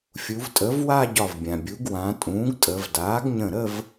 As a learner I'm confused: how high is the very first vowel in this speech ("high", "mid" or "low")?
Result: high